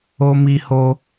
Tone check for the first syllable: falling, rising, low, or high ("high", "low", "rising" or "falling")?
high